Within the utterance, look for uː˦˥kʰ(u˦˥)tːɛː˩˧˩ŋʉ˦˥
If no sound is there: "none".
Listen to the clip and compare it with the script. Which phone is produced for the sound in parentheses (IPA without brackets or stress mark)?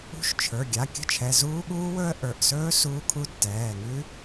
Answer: u˦˥